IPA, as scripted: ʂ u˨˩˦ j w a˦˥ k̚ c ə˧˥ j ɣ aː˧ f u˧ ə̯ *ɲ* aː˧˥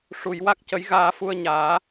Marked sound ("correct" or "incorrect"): correct